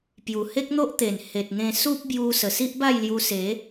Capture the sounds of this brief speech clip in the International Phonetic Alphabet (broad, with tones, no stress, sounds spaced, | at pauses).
p j u˨˩ h e˦ k̚ n̪ o˦ ʔ t̪ e˨˩ n h e˨ t̚ ŋ ẽ˧ s u˦ p̚ b j u˧ s ə˨˩ s i˦ ʔ b a˥˧ j l j u˧ s e˨˦